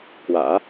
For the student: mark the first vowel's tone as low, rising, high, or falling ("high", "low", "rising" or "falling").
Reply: low